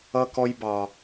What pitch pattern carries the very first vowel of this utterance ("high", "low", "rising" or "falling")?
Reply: high